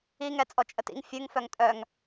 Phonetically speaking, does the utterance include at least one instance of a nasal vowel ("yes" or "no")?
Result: no